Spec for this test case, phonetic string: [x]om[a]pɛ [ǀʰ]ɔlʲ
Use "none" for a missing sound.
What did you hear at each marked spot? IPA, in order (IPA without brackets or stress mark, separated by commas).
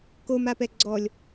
k, a, ɡ͡ǀ